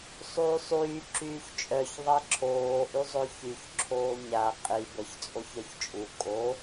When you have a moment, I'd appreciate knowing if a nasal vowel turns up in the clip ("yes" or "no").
no